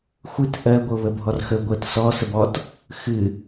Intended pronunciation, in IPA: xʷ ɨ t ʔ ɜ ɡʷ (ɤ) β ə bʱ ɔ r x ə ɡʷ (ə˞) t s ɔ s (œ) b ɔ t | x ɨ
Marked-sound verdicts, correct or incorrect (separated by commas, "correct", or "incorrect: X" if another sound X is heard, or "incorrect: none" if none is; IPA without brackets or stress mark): correct, incorrect: ə, incorrect: ə